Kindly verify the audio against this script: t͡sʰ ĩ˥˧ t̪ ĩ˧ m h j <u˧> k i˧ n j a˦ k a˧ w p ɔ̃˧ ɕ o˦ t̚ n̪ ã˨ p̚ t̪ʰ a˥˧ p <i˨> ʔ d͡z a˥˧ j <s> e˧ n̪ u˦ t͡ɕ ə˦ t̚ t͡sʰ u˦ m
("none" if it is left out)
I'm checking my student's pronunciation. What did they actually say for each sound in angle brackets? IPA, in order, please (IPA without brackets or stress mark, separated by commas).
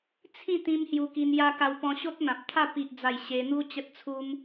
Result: u˧, i˦, ɕ